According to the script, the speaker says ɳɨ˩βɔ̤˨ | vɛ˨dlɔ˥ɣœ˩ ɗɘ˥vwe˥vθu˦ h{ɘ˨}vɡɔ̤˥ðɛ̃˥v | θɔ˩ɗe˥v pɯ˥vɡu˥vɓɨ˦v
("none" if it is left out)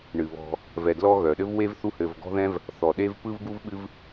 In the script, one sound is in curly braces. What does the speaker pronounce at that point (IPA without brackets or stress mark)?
ɘ˨